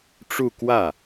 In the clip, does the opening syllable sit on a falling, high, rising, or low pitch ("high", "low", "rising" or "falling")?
falling